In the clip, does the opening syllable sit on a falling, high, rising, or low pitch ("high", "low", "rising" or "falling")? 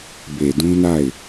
low